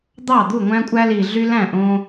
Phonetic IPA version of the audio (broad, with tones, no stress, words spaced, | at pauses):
d̪ɑ˥˩d̪u˥˩ŋʷæ̃˦ kʷʼæ˦li˨ ɮy˦læ̃˥˩ʔõ˦